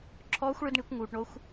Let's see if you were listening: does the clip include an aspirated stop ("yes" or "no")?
yes